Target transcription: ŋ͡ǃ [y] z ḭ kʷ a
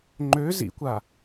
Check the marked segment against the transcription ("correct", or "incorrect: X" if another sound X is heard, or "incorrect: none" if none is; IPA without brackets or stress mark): incorrect: ø